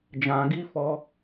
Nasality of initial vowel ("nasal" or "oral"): nasal